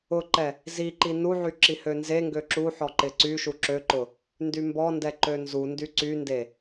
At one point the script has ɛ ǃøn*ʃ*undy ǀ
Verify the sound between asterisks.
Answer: incorrect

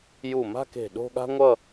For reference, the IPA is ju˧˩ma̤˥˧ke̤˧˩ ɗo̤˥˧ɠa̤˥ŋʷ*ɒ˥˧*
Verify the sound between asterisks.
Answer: incorrect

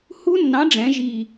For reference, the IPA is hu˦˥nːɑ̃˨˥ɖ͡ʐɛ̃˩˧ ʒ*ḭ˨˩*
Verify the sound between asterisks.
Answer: incorrect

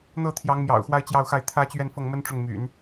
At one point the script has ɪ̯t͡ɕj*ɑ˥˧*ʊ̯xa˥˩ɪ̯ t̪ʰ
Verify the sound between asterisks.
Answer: correct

